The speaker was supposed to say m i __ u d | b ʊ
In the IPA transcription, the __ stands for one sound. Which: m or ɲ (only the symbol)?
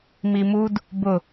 m